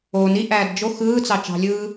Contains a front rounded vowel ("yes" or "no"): no